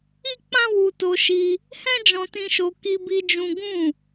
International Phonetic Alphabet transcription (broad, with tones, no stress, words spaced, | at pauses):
i˦k͡pã˦ wu˧to˧ʃi˧ | hɛ̃˦d͡ʒɔ̃˧tĩ˧ʃo˧ ki˧bi˧ d͡ʒũ˦ ɡũ˦˨